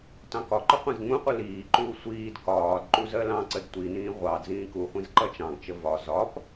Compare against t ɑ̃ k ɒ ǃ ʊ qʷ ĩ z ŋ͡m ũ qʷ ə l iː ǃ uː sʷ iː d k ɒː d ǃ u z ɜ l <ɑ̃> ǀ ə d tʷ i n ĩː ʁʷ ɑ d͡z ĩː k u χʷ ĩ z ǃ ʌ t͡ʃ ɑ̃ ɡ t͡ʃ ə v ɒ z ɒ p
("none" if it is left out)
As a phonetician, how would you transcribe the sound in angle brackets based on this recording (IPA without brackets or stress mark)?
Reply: ɑ̃